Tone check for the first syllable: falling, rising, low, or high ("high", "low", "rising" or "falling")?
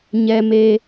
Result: low